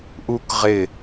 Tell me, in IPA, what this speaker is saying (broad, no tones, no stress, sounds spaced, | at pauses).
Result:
ʔ u k ʁ ɪ